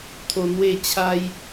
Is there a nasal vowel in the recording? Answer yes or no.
no